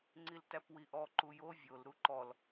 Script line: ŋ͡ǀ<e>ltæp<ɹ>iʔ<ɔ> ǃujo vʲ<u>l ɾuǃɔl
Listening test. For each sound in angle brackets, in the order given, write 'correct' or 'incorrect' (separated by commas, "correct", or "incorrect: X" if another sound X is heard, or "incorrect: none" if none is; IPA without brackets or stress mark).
incorrect: i, incorrect: w, correct, incorrect: o